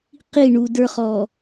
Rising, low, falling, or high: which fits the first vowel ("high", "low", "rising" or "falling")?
falling